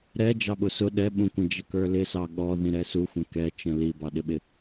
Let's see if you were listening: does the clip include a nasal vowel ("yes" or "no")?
yes